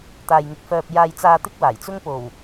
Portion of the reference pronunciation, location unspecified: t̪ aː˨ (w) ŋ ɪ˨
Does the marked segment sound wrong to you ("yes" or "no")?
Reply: yes